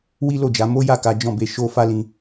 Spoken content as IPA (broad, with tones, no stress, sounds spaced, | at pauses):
w i˦ l o˦˨ d͡ʒ a˨˦ m o˦ j a˦˨ k a˨˦ d͡ʒ ɔ̃˦˨ b e˨˦ ʃ o˦ f a˦ l ĩ˧